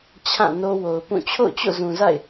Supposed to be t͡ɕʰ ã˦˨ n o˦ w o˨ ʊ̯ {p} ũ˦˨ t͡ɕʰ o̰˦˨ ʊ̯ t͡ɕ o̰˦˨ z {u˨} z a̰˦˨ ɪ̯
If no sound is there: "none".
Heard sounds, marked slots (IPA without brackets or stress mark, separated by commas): p, ũ˨